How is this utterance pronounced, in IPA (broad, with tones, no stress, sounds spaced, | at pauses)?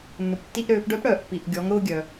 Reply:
nː ʊ˩ p tː i˧ ʔ ɾ øː˩˧ p ɖ œ˧˥ p ɽ œː˩ ʔ pː i˩ ʔ ɡʲ ɔ˩˧ ŋ ɾ ʊː˧ ɡʲ œ˩